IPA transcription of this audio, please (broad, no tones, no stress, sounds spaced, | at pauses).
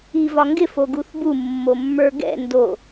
i v ɒ ŋ ɡ ɪ f o ɡ u θ b u mː o mː ə˞ ɡ ɛ̰ n d o